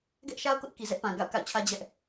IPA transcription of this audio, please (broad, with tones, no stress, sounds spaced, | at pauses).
ɡ ɛ˦ ʔ ʃ a˦ ʊ̯ k ʊ˦ ʔ k i˨ z ɛ˦ ʔ p ã˨ ɡ a̰˦˨ ʊ̯ k a̰˦˨ ʊ̯ t͡ɕʰ ä˦ d͡ʑ ɛ˦ ʔ